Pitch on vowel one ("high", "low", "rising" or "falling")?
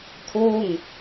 falling